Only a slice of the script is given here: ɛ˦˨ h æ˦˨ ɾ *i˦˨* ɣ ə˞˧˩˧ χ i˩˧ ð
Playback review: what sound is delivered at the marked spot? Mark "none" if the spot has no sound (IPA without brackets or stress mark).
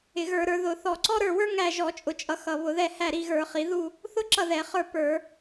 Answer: i˦˨